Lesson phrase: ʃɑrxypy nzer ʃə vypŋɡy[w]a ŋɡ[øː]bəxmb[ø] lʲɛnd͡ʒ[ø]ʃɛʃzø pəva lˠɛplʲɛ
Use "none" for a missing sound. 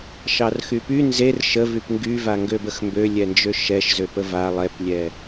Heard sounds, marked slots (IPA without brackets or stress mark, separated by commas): v, ø, ø, ø